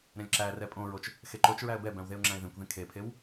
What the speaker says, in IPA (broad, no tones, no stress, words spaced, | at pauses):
ɾɛ̃lʲǁærɛ pʼõɹot͡ʃ | xeǃot͡ʃɹæə̯ bɛbæ̃w ðeʊ̯ŋ͡ǁæ̃ɪ̯ðẽkʷðẽ kʰepʰew